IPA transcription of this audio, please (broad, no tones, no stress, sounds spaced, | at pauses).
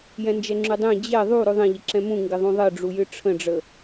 j ɛ̃ n d͡ʒ ɛ ŋ͡ǁ ʉ dˤ ẽ d͡ʑ ɛ ðˤ u ɾ ʉ ðˤ ẽ ʎ ɪ ǁ ɛ̃ m ũ ŋ ɡ ɪ ðˤ ũ ðˤ ɘ ɖ͡ʐ u j ɨ ʈ͡ʂʰ ə̃ ɖ͡ʐ ə